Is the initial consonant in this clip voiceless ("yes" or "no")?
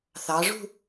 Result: yes